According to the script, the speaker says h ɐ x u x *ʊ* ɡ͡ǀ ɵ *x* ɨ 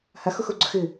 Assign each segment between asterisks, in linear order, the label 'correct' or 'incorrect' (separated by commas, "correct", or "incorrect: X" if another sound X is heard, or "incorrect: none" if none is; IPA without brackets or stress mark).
incorrect: u, correct